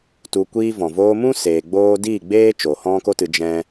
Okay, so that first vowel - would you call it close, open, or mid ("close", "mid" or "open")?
close